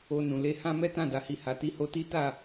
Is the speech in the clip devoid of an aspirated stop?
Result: yes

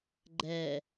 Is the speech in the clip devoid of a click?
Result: no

